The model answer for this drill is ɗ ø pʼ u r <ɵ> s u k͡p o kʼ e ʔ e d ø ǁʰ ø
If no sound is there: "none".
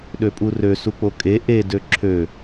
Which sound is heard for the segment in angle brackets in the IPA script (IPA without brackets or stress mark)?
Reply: ø